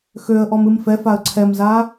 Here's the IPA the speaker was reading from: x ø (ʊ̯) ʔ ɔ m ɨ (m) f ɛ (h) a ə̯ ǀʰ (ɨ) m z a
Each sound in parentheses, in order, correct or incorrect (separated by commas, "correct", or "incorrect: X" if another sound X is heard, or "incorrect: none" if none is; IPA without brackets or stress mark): incorrect: ə̯, correct, incorrect: f, incorrect: ɛ